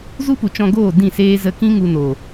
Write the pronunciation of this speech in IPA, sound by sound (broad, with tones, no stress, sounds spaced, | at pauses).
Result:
z u˦ p u˨ t͡ʃ ɔ̃˧ ɡ oː˦˨ d ĩ˦˨ s eː˦ z ə˧ k ĩ˦ ŋ u˧ n o˨